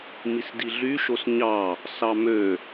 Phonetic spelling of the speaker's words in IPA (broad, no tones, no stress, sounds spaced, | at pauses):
m i s d i ɮ y ʃ o s ɲ ɑ | s ɑ m ø